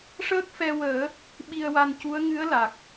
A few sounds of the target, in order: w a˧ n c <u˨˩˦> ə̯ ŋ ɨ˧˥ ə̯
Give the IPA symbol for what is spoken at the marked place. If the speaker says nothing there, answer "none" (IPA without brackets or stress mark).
u˧˥